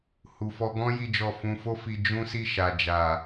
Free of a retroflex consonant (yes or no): yes